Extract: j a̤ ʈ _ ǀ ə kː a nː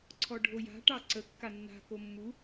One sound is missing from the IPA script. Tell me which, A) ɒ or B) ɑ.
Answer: B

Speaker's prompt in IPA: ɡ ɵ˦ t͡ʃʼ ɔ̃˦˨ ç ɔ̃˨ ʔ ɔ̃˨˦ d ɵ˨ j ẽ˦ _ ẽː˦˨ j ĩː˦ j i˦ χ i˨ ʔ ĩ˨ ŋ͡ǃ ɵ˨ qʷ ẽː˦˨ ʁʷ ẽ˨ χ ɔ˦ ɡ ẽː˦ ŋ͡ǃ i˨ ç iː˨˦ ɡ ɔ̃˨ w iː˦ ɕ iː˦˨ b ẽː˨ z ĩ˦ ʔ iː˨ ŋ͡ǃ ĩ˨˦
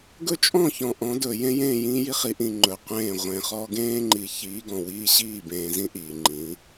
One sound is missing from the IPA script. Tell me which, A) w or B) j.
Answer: B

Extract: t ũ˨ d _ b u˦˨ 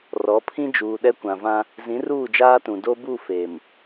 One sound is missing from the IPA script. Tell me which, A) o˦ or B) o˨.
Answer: A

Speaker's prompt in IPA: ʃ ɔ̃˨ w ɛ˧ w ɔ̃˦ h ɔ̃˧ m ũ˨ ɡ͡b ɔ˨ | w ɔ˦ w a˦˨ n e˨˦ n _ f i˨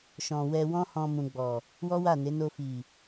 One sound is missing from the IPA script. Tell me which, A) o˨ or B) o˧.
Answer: B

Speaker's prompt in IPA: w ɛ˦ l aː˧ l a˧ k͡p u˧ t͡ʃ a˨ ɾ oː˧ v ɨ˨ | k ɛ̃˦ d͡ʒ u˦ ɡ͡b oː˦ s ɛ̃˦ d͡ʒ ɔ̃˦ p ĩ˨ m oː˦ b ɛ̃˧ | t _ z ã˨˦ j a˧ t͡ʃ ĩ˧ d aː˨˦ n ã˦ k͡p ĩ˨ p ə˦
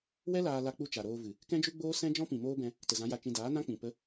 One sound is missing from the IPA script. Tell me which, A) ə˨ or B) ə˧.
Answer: A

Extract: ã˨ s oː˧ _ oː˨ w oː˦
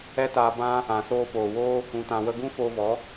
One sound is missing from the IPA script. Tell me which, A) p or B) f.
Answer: A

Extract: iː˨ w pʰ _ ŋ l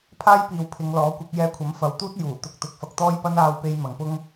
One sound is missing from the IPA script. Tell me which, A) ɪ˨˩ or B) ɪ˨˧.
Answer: B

